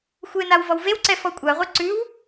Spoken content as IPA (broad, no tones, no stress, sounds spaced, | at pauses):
xʷ e n a w v ɔ w v e w ǀ ɛ f ɔ kʷʼ a ʁʷ e ǀ ʉ w